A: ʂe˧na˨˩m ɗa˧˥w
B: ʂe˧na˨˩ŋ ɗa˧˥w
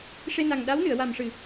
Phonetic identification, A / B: B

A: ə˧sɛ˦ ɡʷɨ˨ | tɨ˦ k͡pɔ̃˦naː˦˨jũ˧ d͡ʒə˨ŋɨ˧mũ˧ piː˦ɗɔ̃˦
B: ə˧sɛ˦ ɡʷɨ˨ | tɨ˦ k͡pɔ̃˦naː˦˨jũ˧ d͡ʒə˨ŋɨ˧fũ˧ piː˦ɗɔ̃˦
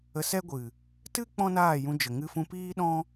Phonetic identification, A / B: B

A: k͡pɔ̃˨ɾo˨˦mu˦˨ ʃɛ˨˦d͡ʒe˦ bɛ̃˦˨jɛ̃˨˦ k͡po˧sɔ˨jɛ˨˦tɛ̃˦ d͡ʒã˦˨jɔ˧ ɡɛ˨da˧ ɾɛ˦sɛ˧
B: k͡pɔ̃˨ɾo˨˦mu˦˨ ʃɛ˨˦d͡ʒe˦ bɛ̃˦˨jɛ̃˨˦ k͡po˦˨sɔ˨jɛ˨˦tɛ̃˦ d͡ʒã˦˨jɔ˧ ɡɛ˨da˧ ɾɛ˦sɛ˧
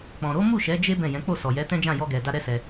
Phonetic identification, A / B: B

